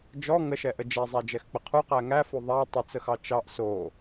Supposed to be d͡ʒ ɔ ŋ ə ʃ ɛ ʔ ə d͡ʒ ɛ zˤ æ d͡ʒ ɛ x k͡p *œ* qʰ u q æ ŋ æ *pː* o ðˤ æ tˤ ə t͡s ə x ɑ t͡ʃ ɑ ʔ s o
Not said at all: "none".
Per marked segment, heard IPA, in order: ə, f

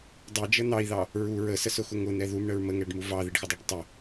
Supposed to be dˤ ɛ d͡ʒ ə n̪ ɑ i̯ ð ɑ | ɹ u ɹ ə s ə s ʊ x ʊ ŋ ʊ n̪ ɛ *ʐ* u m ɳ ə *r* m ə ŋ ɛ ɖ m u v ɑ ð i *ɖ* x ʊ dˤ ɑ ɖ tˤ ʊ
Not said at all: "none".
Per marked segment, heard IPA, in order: ð, ɹ, ɖ

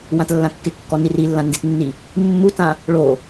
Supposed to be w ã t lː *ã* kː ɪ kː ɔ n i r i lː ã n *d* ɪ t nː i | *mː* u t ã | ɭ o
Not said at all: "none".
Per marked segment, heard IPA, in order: ã, d, mː

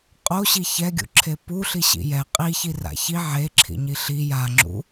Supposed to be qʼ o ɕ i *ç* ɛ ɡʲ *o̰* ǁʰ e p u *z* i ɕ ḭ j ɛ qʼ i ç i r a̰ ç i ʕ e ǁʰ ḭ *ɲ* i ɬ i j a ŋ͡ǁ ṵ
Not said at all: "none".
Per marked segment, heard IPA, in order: ç, ṵ, ɬ, ɲ

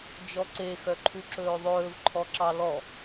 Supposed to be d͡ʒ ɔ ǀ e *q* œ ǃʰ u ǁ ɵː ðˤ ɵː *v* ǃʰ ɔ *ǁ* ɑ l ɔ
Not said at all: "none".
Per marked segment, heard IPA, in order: x, v, ǁ

